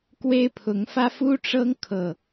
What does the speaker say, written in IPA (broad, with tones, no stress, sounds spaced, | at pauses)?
k w e˦ ɪ̯ pʰ ʊ˨˦ ŋ f ä˦ f u˦ ʈ͡ʂ ɤ˦ ŋ kʰ ɤ˨˩